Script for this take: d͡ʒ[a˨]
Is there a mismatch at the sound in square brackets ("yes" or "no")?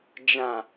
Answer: yes